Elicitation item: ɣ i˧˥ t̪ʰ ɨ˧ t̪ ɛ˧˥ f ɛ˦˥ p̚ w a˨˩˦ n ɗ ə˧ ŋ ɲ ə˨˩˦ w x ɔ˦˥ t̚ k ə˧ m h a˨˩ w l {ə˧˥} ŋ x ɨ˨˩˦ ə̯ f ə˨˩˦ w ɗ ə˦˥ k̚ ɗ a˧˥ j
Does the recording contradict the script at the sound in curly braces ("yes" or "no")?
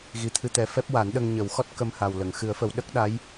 yes